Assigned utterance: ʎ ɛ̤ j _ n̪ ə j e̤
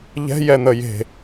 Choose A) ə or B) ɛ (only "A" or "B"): B